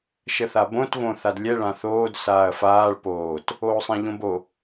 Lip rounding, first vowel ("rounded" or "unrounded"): unrounded